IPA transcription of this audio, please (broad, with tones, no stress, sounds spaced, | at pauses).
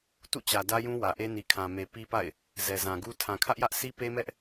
t ṵ˦˨ t͡ɕ ä˨ d ä˦ j ũ˦ w ä˨ ʔ e˦ n i˨ kʰ ã˨ m e˨ p i˦ p a̰˦˨ ɪ̯ | z ɛ˨ z ã˨ ɡ u˦ tʰ ã˨ kʰ ä˦ ʔ j ä˦ ʔ s i˦ p e˦ m ɛ˦ ʔ